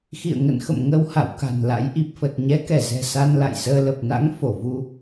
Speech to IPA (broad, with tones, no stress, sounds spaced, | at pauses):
x ḭ˧˨ ə̯ ŋ ə̰˧˨ n x ə̰˧˨ m ŋ ə˧ w h a̰˧˨ w k a̤˨˩ n l a̰˧˥ j ʔ i˨˩ p̚ f ə˨˩ t̚ ɲ ɛ˨˦ k ɛ˧˩ z ɛ̤˨˩ s a˧ n l a̰˧˨ j s əː˧ l ə˨˩ p̚ n a̰˧˥ ŋ f o˧˩ v u˧